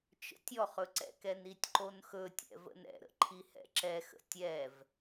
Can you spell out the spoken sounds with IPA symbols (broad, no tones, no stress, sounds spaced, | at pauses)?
t͡ʃ ə̰ tʲ ɔ χ ɵ ǀ ɛ̰ k ɛ n i tʲ ǃ o n x ɵ tʲ ɛ̰ v ə̰ n ɛ̰ ɾ ə̰ ǃʰ i h ɛ̰ ǁ ɛ x ə̰ tʲ ɛ v